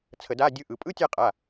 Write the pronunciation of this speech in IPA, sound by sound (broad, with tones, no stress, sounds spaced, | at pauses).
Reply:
t͡sʰ ə˧˩˧ d a˧˥˧ dʲ ɯ˧˥˧ ʔ ɯ˩˧˩ pʼ ɯ˧˥˧ tʲ a˦˨ qʼ a˩˧˩